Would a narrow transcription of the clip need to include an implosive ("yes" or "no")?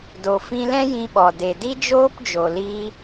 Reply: yes